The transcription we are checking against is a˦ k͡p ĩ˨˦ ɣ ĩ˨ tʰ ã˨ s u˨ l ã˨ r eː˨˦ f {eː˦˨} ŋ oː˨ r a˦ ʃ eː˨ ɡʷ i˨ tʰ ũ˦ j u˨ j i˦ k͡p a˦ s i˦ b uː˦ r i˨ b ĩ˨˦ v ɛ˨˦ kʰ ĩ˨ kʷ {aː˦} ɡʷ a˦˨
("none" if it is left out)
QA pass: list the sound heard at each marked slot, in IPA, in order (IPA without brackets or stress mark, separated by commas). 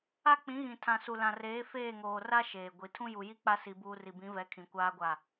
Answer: eː˦˨, aː˦